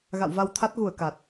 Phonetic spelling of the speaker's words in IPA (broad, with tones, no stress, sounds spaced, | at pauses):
ɣ a̰˧˨ w v a˧ w t̪ʰ a˦˥ t̚ ɣ u˧˩ ə̯ k a˨˩ t̚